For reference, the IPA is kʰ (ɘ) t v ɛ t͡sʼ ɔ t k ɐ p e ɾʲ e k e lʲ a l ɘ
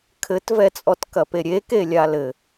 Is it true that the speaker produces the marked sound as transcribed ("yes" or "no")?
yes